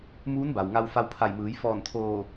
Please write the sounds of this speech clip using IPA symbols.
muː˧˥nba˩w ŋa˧wfa˧wpʰa˧˩jmɯː˩˧j fɔː˧˩nt̪ʰoː˧˩

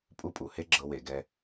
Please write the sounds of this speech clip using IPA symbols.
pʼu˦pʼu˩he˦ ɡ͡ǁɤ˨we˩ɡɛ˨

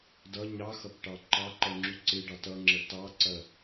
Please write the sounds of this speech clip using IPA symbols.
dʌ ɲɑxʌpʈɑ ǃɑǃʌŋ͡ǁu ǀɪɖɑ tʌŋ͡ǁə tɑǀɐ

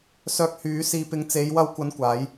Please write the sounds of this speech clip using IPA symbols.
sœː˧k̚hyː˨˧siː˨ pɪ˨˧ŋt͡se˨˧jwɐ˧wkʷɐ˨˧n kʷaː˨˧j

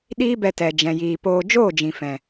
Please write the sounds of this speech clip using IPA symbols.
ɗiː˦bɛ˧ tɛ˨ d͡ʒɛ̃˨jiː˨ poː˧ d͡ʒoː˦˨d͡ʒĩ˨ fɛ̃˨

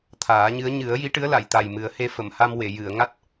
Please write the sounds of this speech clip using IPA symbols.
t̪ʰaː˨˩˦ɲɨ˧˥ə̯ ɲɨ˨˩˦ə̯ji˧˥ʈɨ˧˥ə̯ la˨˩˨jt̪a˨˩jmɨ˨˩˦ə̯ he˧fə˨˩˨mha˧m we˨˩˨ jɨ˨˩˨ə̯ ŋa˦˥t̚

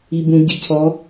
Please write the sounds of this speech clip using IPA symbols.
ibũ ɟicʰɔ

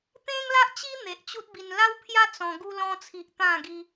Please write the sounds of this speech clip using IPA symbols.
t̪ẽ˦ŋla˦ʔt͡ɕi˦ n̪e˨ʔt͡ɕu˦t̚bi˧n la˦wpʰja˦ t͡sɔ̃˧ ɡu˧lɔ̃˧t͡sʰi˨ʔ t̪ã˥˧ɡi˦

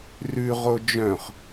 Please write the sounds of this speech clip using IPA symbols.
rʉ ʁod͡ʒœ̃χ

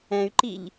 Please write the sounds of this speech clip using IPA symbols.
ɛ̃y̯ǃiʎ

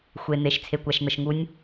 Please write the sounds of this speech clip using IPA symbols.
xʷe˩n̪e˩ʃ t͡sʰe˩kʷæ˩ʃn̪ə˩ʃŋu˨˦nʲ

